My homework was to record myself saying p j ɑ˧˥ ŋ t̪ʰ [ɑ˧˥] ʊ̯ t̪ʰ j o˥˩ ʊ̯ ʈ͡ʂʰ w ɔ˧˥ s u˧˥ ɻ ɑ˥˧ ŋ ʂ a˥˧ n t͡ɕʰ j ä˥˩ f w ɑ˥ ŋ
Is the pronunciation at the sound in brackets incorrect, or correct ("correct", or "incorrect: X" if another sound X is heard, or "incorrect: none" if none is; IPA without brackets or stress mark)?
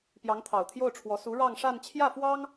incorrect: ɑ˨˩